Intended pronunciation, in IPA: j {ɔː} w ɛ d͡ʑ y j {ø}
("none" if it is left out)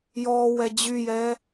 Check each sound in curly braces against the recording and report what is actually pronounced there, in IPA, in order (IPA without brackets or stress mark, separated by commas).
ɔː, ɛ